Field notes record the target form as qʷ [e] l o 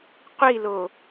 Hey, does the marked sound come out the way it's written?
no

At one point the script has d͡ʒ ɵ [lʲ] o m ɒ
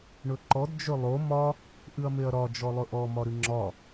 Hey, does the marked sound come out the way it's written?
no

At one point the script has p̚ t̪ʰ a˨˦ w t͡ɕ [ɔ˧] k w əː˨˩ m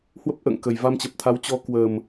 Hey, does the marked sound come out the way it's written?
yes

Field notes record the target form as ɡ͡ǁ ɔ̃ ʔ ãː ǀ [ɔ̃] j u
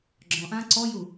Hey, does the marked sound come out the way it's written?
no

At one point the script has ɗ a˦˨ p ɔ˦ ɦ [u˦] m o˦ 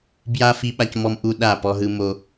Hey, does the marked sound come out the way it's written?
no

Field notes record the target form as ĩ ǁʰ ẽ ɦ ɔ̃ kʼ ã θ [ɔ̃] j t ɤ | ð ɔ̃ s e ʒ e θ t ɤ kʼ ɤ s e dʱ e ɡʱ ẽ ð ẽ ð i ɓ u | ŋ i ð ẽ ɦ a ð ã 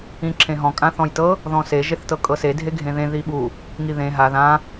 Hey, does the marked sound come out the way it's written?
yes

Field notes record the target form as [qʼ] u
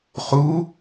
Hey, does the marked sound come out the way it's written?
no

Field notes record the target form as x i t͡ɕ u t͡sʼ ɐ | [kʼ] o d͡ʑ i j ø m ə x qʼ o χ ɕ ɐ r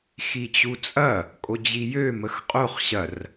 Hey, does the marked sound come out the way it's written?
yes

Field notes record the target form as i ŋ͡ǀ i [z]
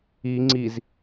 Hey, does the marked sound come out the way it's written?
yes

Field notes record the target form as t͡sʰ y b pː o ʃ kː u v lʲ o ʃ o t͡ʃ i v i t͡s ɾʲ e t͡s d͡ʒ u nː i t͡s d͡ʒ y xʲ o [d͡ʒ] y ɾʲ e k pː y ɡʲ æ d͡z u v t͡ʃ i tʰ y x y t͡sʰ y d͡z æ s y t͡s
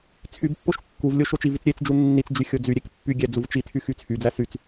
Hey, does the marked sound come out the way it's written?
no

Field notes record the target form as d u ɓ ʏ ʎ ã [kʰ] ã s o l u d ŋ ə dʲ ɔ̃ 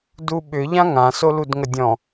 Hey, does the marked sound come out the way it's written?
no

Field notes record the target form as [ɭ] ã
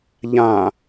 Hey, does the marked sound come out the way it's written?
no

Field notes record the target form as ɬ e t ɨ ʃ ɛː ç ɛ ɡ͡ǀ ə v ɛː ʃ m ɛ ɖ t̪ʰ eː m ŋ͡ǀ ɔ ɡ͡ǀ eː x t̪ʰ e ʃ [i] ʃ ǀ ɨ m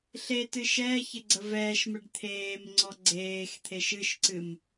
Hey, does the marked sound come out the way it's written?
no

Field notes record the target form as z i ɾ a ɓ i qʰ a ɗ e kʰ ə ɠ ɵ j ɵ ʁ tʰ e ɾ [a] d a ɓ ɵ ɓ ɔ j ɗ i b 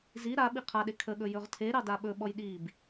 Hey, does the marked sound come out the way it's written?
no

